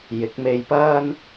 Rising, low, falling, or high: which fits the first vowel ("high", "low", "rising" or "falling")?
rising